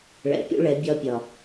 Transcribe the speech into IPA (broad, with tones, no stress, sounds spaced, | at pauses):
ɭ ɛ̰˨ pʲ ṵ˦ ɭ ɛ˨˦ bʲ ɒ˦ pʲ ɒ˨